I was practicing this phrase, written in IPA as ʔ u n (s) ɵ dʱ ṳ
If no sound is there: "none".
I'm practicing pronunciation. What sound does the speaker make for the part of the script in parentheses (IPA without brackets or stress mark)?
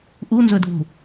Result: z